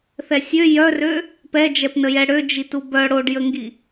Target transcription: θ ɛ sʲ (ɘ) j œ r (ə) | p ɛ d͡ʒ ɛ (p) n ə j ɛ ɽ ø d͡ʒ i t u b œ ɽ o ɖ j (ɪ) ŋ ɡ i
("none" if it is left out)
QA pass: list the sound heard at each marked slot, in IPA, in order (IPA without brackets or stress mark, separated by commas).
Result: ø, ø, p, ə